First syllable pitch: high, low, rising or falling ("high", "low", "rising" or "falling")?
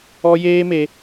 high